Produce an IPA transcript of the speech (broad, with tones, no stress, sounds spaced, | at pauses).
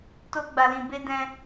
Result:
t o˧ ɡ͡b a˨ l ĩ˨ b e˧ d ɛ̃˧